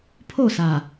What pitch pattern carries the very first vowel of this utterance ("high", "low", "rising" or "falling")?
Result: falling